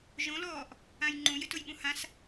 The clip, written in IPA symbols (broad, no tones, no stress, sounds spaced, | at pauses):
ʒ õ l ɔː ʔ | ã j ŋ͡ǃ ũ j ɪ t ʊ j ɠ ũ h ã s